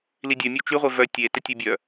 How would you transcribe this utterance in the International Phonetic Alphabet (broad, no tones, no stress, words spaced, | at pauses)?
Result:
lidʲœ mʲot͡ʃyʁʷe vœ tʲetə tʲebʲœ